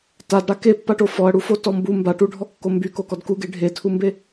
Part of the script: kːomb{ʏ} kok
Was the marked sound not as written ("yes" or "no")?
yes